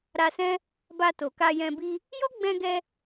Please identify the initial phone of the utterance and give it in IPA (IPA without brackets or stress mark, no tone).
ɾ